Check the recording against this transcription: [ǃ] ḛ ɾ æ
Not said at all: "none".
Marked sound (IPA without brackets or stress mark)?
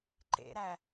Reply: ǃ